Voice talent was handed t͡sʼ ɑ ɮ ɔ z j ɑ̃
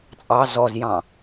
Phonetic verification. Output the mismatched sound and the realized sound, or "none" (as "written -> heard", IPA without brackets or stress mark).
ɮ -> z